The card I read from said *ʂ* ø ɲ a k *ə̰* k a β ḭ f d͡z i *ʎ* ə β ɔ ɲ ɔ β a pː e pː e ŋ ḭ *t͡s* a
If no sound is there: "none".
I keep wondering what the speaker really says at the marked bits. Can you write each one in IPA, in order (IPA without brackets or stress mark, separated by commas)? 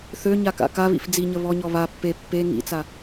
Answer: θ, a̰, ɲ, t͡s